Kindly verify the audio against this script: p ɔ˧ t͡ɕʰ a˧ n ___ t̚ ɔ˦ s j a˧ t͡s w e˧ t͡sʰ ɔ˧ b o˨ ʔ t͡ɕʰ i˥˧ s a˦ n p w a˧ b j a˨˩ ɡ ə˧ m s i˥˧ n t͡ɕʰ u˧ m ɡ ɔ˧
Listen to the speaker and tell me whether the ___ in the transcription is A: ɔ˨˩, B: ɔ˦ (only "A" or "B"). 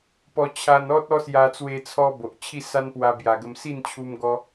B